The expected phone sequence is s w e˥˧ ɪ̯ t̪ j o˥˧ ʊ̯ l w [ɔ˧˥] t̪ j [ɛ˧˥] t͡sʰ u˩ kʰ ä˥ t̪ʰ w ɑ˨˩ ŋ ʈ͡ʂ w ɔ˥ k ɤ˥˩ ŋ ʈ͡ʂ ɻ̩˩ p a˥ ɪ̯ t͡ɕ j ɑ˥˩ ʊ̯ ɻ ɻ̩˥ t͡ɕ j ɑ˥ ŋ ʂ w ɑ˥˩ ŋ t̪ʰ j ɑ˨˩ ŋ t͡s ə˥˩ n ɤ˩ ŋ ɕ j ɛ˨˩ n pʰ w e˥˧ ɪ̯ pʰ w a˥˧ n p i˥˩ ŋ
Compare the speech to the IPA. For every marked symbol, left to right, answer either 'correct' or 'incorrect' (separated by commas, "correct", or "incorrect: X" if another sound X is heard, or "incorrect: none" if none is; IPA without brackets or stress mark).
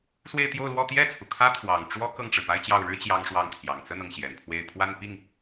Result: incorrect: ɔ˥˧, incorrect: ɛ˥˩